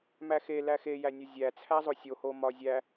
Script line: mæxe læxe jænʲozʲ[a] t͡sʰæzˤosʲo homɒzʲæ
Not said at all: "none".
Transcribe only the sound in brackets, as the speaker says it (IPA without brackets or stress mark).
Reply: æ